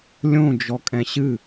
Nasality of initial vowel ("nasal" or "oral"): nasal